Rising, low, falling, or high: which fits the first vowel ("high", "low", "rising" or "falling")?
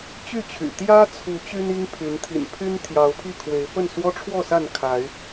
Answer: falling